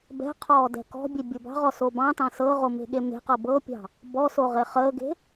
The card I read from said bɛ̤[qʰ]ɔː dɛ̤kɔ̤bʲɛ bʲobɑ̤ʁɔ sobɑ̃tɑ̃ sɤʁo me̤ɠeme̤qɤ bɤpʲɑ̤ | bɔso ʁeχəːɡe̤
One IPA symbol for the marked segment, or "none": qʰ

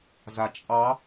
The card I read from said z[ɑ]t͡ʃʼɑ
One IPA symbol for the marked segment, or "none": a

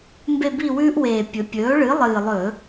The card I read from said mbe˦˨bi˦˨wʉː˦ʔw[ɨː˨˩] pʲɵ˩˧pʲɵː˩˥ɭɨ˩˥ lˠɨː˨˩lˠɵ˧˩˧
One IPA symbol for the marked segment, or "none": eː˨˩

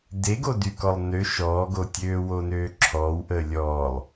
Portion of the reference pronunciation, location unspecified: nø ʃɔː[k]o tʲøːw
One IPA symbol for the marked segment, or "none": ɡ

